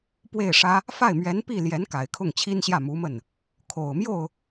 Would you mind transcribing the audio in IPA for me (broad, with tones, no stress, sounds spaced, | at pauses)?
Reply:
p w e˥˩ ɪ̯ ʂ ä˥ | f a˥˩ ɪ̯ m ɥ ɛ˧˥ n p i˥˩ l j ɛ˧˥ n k a˨˩ ɪ̯ kʰ ʊ˥˩ ŋ t͡ɕʰ i˥ n ɕ j ä˥˩ m u˧˥ m ə˥˩ n | kʰ o˨˩ ʊ̯ m j o˥˩ ʊ̯